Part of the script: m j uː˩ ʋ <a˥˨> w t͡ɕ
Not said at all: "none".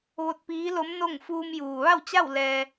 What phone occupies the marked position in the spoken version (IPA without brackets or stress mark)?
a˥˨